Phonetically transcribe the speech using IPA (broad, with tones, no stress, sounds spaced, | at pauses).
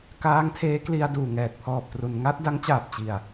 k aː˦˥ ŋ tʰ eː˦˥ k l i˧ a̯ d uː˨˩ ŋ ɛː˨˩ t̚ pʰ ɔː˨˩ p̚ t r u˩˦ n ŋ a˦˥ t̚ d a˦˥ ŋ t͡ɕ aː˨˩ p̚ t͡ɕ i˨˩ a̯